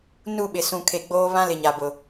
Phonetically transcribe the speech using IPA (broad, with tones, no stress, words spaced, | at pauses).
nu˦˨ɓɪ˨ sũ˨kʰe˨ ɡ͡boː˦βã˦lɪ˨ ɲa˨bʊ˨